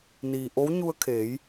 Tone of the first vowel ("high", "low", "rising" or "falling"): low